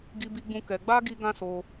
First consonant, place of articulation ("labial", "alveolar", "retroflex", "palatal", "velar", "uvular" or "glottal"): velar